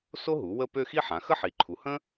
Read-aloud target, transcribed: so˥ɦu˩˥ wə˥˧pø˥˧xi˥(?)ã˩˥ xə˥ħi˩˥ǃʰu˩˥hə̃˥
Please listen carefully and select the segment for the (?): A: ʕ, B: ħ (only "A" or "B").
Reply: B